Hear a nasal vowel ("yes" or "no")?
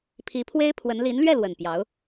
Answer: no